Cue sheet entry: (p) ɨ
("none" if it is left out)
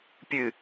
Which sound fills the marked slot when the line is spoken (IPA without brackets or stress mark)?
pʲ